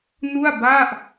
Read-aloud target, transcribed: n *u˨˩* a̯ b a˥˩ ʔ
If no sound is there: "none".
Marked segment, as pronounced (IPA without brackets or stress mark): u˥˩